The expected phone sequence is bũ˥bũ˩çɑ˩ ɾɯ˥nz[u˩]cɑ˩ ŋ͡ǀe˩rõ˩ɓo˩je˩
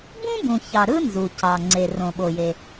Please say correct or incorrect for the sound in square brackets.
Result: correct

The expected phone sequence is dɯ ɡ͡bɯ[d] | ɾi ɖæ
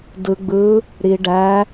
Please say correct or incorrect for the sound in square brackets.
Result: incorrect: none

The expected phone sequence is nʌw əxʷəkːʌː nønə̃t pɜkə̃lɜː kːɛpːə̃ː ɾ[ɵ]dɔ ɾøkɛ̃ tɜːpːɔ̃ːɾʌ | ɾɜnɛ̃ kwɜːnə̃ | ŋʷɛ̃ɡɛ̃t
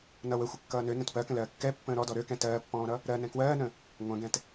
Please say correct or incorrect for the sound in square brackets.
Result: incorrect: ɔ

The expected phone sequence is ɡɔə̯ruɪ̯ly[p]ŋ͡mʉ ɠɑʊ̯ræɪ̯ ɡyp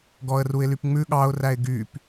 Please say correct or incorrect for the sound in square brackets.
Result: correct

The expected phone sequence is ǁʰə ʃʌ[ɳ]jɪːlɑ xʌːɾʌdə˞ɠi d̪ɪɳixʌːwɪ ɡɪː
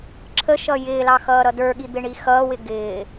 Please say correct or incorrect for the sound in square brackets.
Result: incorrect: none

